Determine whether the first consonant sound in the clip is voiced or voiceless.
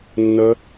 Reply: voiced